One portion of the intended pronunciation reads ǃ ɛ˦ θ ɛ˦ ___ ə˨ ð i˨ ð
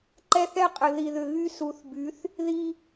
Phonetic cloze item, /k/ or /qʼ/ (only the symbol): qʼ